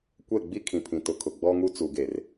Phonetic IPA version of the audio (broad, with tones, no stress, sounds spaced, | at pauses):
kʷ ɛ˦˨ ɡ͡b i˦ kʰ ĩ˨ pʰ ĩ˨ t ʊ˨ kʰ ʊ˨ ɡ͡b ɔ˦ ŋ u˦ t͡s u˨ ɡ e˨ r